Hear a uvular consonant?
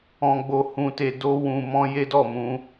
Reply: no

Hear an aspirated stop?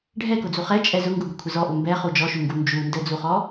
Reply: yes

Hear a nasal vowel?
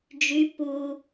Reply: no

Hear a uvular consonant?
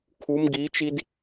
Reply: no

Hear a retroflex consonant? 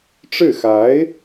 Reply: yes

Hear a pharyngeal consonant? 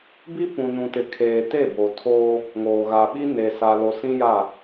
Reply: no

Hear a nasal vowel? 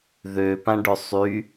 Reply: yes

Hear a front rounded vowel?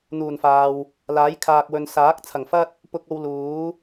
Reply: no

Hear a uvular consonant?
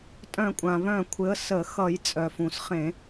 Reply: yes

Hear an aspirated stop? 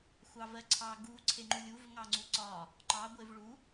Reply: yes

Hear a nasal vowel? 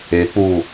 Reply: no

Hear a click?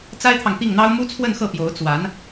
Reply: no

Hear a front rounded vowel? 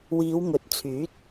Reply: yes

